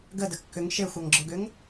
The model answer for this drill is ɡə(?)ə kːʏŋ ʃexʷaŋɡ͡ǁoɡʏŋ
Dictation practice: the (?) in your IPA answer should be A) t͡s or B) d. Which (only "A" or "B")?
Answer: B